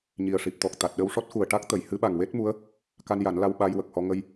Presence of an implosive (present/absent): present